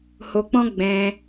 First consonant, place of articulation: glottal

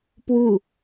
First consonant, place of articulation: labial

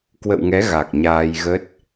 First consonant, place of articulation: velar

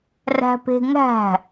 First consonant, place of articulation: alveolar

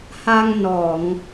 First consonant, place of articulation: glottal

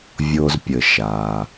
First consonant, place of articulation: labial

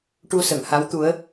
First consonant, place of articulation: retroflex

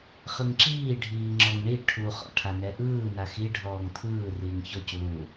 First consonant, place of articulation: uvular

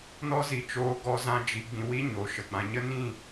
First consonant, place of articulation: alveolar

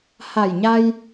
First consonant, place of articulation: glottal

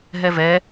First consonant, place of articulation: glottal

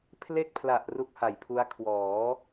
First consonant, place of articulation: labial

